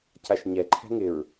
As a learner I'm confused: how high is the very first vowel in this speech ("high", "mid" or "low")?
low